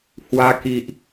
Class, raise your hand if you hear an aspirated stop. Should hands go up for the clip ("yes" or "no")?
no